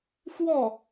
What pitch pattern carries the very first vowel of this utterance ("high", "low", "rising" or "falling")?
falling